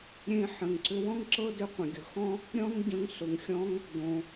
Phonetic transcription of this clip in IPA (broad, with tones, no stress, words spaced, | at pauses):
ɾʲẽ˧ ħə̃˩ŋ ǀʏ˧wɔ̃˥ŋ ǁɤ˥dʏ˧˥qʷə̃˩ɡʲʊ˩ xɔ̃˥ | ɾʲɔ̃˥ŋɟə̃˧ŋ ɬʊ˩ŋxʲɔ̃˧˥ŋ | dõ˩